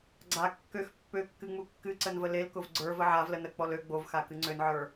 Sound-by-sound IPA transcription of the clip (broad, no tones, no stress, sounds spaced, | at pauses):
ɡ͡ǀ a kː ø x pː ø kː ɨ ŋ͡m u kː ɨ ǀ ə n v ə l e l k ʊ v ɡ͡ǀ ə˞ v ə ʕ a v l ə n ə k͡p ɔ l ø ɡ͡b o v x a k ɨ ŋ͡ǀ ø n ʕ ə˞